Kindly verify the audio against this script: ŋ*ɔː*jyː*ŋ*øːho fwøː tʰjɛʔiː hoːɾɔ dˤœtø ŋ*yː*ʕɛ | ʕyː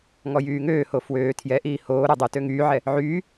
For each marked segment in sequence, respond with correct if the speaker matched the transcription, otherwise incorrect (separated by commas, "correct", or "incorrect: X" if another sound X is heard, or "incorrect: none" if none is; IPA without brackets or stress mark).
incorrect: ɔ, correct, correct